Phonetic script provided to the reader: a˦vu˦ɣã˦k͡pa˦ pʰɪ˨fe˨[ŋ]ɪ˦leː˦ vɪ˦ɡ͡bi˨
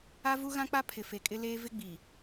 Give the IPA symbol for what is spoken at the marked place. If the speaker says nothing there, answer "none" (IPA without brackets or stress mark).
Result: kʼ